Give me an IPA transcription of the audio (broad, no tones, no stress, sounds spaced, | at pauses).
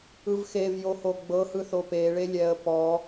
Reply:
ɯ v x e v j o h o ɡ͡b ɤ h ɯ θ o p e ɭ e lʲ ɛ ə̯ p ɔ